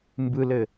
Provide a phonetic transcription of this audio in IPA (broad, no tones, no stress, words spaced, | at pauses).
mbɯlɘ